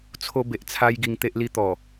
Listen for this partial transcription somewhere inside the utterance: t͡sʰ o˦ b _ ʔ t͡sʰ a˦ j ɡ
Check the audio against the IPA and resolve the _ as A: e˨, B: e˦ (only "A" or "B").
A